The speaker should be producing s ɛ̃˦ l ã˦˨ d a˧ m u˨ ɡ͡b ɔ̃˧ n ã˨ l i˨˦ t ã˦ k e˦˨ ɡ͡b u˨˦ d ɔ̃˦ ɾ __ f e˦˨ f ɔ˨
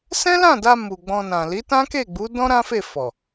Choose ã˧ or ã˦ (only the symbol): ã˦